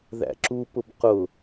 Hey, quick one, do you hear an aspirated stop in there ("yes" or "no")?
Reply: no